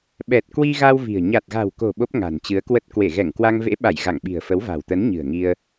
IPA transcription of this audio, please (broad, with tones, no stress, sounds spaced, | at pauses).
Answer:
ɓ ɛ˨˩ t̚ k w i˧ ɣ a˧ w v i̤˨˩ ə̯ ɲ a˨˩ t̚ ɣ a̤˨˩ w k o̤˨˩ ɓ o˦˥ p̚ ŋ a̤˨˩ n t͡ɕ ɨ˨˦ ə̯ k w ə˦˥ t̚ k w e˧˩ ɣ ɛ˧˩ ŋ k w a˧ ŋ v ḛ˧˥ ɓ a˧˩ j ɣ a˧˩ ŋ ɓ i̤˨˩ ə̯ f ə˨˦ w v a̤˨˩ w t̪ ə˨˦ n ɲ ɨ̤˨˩ ə̯ ŋ i˧ ə̯